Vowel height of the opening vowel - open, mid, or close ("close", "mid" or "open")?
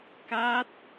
open